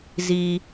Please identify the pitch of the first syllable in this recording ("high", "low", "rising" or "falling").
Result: low